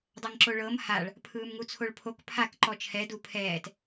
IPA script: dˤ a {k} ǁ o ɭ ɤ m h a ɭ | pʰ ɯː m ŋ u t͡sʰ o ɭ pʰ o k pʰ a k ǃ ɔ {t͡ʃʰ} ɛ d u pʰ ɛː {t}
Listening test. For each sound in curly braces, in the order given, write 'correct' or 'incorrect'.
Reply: incorrect: ŋ, correct, correct

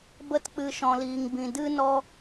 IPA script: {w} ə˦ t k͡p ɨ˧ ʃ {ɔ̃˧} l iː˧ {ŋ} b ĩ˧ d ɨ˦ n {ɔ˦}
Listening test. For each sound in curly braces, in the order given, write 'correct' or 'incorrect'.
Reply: incorrect: b, correct, correct, correct

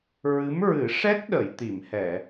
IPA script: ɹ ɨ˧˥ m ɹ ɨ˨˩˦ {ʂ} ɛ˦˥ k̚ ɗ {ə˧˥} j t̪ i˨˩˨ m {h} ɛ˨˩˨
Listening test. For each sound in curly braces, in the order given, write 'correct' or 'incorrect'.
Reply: correct, incorrect: ə˨˩˨, correct

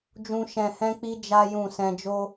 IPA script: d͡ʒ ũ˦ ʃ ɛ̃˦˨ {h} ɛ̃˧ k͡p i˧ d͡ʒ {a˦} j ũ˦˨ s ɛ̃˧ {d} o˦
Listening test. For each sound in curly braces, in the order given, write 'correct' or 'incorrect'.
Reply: correct, correct, incorrect: d͡ʒ

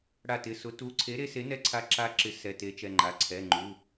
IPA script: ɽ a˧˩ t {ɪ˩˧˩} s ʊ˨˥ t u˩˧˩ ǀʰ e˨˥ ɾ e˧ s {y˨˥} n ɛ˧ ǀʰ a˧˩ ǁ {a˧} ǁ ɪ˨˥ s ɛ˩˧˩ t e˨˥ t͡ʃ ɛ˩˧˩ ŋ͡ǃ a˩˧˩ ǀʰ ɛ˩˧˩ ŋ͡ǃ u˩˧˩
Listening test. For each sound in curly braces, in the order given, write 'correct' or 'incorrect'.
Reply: correct, incorrect: e˨˥, incorrect: a˧˩

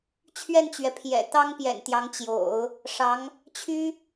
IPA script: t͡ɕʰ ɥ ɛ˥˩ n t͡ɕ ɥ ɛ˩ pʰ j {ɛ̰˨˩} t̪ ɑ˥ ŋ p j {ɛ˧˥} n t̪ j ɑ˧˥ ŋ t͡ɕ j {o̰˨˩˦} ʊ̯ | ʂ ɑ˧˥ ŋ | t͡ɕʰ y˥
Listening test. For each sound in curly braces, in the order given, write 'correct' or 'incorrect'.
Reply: correct, incorrect: ɛ̰˨˩, correct

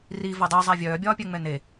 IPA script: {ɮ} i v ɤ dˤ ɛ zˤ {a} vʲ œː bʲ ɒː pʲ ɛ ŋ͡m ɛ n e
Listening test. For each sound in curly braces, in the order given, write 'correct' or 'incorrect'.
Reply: incorrect: r, correct

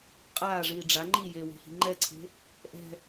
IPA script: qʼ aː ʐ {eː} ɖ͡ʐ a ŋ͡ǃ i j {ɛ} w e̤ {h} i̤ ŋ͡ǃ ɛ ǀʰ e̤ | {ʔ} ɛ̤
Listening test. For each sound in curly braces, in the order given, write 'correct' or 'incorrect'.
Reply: incorrect: iː, incorrect: e, correct, correct

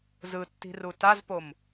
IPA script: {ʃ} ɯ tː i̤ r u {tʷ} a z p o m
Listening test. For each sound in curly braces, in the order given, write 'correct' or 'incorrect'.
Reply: incorrect: z, incorrect: t

